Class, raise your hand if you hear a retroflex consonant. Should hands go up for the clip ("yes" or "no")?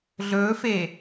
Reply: no